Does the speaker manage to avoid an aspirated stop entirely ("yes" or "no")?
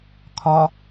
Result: no